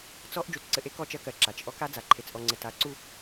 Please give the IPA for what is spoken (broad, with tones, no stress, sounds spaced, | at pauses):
t͡s ɔ˦ ʔ d͡ʒ u˨ t ǀ ɘ˨ ʔ e˦ k ɔ˦˨ t͡ʃ ɜ˦ k ɜ˨ ǁ a˨ t͡ʃ ʔ ɔ˦ k a˦ d͡z a˨ ǃʰ e˨ t͡s ʔ ɔ˨ ŋ͡ǀ ɘ˨ t a˦ ǀ u˦